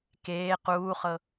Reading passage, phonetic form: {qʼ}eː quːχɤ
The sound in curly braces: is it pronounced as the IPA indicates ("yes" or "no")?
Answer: no